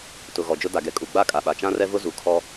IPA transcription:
tʊ˨ ɣɔ˨d͡ʒʊ˦ da˨ɡɛ˨ kʼu˨ɡ͡ba˦˨ kʼa˨ɓa˨ t͡ʃã˦rɛ˦vʊ˦ zu˨kʰɔ˦

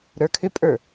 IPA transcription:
ɾə˞kʰʏpʼə˞

